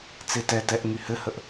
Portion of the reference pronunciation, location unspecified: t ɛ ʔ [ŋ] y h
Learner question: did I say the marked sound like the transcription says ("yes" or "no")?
yes